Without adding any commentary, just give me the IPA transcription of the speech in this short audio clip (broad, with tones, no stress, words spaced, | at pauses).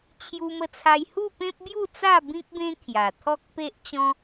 t͡ɕʰju˧mə˧t͡sʰa˧j hu˥˧pẽ˦p̚bju˥˧t͡sa˥˧ bĩ˦k̚bẽ˦ kʰja˨˩ t̪ʰɔ˦k̚pe˦ʔt͡ɕɔ̃˦